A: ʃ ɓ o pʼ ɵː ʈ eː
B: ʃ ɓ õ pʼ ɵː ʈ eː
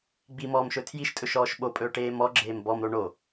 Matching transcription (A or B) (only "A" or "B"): A